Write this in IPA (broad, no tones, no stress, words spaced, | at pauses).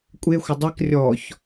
kʷʼexʷə dˤɛk rʲɔç